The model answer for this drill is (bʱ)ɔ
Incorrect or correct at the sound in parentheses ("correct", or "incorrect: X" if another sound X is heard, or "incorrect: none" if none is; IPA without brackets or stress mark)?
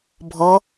correct